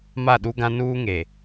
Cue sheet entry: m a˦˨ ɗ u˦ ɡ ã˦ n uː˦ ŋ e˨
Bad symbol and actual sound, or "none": none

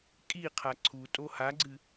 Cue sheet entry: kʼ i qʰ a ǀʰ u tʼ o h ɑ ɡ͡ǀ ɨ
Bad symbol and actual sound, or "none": ɑ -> a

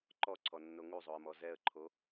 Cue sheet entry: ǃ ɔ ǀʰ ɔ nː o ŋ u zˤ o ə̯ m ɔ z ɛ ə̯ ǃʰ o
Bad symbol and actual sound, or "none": none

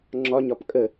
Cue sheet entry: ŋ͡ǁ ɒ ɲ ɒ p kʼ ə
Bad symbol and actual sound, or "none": none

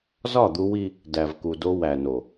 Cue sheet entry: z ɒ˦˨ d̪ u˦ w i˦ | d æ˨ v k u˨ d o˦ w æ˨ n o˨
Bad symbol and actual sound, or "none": none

